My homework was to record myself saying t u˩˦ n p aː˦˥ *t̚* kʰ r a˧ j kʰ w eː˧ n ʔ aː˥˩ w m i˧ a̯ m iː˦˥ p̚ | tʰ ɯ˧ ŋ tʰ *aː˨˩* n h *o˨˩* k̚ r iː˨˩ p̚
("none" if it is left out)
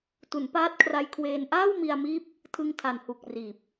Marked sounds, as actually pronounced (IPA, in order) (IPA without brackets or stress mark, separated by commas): t̚, a˨˩, u˨˩